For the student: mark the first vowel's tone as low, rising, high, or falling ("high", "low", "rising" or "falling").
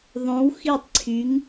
rising